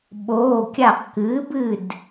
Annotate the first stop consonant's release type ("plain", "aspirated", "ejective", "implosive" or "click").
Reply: implosive